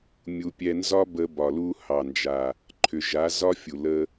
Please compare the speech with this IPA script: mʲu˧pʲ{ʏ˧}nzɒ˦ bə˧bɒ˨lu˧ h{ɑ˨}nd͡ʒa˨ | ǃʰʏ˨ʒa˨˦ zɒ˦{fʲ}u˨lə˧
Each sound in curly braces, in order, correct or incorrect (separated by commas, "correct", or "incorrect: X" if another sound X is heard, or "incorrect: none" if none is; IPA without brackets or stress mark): incorrect: ɛ˧, correct, correct